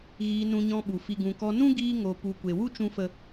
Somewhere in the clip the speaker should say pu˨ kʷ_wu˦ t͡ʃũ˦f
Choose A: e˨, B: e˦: A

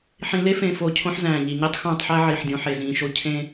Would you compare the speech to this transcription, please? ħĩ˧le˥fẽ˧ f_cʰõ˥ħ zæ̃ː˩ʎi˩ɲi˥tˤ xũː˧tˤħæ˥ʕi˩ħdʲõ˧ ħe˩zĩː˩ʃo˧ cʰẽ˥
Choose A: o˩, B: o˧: B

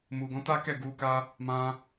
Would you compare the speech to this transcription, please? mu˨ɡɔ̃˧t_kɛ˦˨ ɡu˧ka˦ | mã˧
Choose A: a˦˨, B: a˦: B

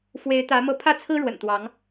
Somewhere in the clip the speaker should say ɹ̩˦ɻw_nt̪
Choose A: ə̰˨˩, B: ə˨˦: A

